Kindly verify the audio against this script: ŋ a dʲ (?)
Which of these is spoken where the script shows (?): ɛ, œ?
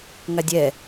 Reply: ɛ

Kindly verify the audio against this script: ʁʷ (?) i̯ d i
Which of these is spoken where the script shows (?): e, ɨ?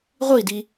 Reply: ɨ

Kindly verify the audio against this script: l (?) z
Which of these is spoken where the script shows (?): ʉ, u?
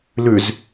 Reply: ʉ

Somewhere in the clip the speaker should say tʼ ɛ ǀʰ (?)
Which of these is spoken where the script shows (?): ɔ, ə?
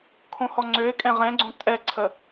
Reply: ə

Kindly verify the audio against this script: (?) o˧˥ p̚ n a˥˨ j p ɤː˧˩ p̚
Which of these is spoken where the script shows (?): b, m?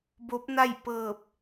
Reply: b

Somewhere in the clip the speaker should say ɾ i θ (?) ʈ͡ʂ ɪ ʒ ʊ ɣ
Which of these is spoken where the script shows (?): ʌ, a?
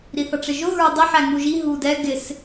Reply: ʌ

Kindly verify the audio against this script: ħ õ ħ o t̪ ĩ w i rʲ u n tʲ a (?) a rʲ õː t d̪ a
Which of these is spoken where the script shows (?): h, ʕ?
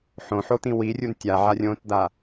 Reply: ʕ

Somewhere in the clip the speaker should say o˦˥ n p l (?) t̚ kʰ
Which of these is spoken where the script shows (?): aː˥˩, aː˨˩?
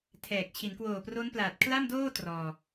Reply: aː˨˩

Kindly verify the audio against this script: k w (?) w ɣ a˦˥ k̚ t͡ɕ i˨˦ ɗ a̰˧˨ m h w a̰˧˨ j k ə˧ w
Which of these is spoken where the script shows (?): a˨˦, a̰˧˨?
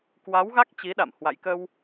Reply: a˨˦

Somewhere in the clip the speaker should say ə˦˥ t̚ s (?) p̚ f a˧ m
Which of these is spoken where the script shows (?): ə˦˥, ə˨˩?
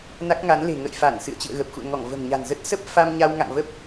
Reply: ə˦˥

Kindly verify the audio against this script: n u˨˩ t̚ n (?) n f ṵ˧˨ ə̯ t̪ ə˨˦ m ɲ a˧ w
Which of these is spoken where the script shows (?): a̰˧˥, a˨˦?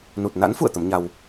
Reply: a̰˧˥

